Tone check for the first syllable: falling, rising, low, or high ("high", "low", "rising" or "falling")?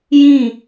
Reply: falling